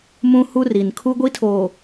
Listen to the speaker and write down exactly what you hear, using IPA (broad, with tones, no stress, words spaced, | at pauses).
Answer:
mũ˦hu˦ri˨n kʰu˦ɡʷi˦tʰoː˨